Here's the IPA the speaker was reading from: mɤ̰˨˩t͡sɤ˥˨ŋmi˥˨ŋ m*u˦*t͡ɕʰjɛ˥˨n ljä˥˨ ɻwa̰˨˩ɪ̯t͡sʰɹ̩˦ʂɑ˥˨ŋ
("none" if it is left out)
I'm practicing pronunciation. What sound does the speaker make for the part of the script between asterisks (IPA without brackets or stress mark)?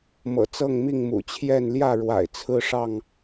ṵ˨˩